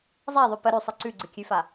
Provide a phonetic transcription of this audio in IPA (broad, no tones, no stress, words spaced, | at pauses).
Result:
zˤaðˤʉ pə ɾʉsˤɨ ǀʉɡ͡ǀɨkʲʉfa